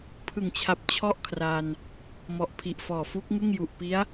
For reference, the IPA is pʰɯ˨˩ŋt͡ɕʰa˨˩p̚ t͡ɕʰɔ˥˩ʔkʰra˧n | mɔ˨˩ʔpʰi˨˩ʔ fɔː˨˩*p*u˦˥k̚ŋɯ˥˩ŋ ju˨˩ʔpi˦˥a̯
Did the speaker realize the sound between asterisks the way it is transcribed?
no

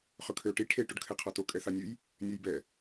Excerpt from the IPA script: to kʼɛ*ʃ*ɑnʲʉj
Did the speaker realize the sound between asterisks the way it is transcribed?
no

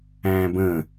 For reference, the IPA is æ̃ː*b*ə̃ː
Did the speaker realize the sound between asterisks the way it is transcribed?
yes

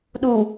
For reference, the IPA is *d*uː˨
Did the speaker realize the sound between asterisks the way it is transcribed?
no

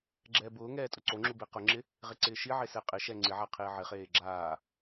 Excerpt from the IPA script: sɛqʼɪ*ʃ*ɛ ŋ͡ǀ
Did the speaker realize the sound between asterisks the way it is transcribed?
yes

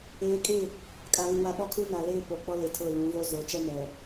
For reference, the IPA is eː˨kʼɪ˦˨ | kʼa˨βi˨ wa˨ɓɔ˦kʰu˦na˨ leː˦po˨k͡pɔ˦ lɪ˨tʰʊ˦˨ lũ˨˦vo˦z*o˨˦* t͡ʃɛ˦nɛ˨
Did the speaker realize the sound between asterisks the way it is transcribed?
yes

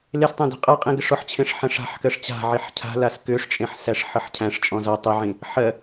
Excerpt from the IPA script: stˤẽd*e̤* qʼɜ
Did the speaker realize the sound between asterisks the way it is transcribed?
yes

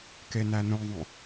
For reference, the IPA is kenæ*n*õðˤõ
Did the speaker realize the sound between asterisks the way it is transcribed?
yes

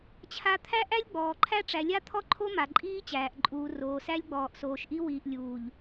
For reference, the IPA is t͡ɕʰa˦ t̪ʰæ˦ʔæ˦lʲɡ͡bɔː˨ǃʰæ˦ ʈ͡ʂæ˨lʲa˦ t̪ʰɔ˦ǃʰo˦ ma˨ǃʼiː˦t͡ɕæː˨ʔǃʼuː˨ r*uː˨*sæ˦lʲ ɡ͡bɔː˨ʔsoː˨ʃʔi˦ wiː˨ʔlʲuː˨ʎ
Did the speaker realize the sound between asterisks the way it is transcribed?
no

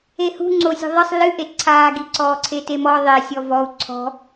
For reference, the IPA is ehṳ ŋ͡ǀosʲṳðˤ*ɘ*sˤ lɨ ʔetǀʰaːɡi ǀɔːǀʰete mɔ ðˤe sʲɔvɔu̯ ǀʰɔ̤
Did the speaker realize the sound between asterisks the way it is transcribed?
yes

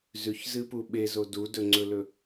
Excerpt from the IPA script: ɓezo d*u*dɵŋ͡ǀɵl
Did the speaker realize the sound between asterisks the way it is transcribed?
yes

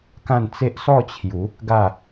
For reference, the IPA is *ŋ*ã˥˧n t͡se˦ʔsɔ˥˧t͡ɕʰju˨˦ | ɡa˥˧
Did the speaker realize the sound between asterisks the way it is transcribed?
no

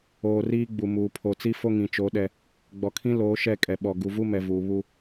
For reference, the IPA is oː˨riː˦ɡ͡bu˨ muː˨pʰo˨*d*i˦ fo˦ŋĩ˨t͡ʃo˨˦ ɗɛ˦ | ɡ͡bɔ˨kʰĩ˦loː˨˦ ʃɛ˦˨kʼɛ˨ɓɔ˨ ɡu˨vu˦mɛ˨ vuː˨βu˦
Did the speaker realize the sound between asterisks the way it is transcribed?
no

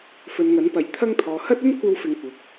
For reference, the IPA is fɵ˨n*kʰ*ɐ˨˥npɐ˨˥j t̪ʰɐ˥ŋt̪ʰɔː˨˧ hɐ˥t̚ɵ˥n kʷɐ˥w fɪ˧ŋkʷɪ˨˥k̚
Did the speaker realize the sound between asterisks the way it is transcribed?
no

